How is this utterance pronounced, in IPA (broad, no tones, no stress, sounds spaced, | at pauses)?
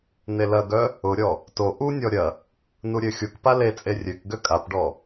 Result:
n e l ɐ ɡ œ | ʊ ɾʲ ɔ | t o ʔ u nʲ ɔ ɾʲ ɐ | n u ɾʲ ø xʲ u k p a l e t͡sʼ e rʲ ø k ɡ ø kʼ a p ɖ ɔ